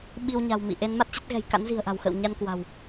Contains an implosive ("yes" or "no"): yes